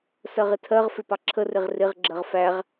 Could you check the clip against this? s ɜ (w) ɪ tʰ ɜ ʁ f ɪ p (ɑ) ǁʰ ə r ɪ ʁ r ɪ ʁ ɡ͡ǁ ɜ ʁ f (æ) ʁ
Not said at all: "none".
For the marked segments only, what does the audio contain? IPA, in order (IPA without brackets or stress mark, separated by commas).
ʁ, ɑ, æ